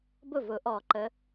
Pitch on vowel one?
falling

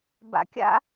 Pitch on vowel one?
rising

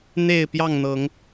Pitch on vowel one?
falling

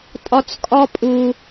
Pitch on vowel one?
low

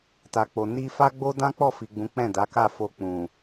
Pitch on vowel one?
low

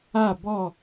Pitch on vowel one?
falling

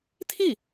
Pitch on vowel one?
falling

